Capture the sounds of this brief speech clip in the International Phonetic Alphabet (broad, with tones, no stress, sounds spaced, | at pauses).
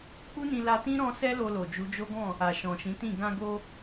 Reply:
k͡p u˦ n ĩ˧ l a˧ t ĩ˦ ɾ ɔ̃˦ s ɛ˦ l o˧ l o˨ d͡ʒ u˨˦ d͡ʒ o˦ ɡ ɔ̃˦˨ | a˨ ʃ ɔ̃˨ ʃ ĩ˨˦ t ĩ˦˨ ɡ ã˧ ɡ o˧